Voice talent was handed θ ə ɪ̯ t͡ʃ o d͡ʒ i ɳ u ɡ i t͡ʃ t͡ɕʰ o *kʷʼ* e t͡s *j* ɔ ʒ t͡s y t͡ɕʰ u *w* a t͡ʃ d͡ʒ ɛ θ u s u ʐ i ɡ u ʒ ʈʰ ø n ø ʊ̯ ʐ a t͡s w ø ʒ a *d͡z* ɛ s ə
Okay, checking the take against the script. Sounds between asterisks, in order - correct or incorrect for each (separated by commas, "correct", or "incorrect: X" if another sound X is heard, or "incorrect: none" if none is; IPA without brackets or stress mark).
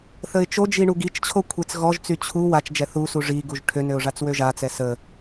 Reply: incorrect: kʷʰ, incorrect: ɣ, correct, incorrect: t͡s